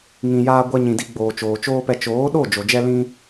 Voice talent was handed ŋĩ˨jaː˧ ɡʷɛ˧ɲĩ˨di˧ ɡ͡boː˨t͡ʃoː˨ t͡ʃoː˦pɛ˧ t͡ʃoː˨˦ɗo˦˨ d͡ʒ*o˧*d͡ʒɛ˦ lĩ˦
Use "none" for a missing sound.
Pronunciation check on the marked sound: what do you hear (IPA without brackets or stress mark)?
o˨